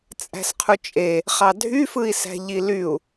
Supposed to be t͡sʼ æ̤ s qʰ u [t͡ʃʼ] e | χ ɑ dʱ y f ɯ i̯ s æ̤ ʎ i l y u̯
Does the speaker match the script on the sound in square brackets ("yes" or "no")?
yes